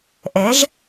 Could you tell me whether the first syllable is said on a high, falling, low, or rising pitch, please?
rising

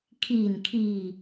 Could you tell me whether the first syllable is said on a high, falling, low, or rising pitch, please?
low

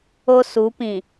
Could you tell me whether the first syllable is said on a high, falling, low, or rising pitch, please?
high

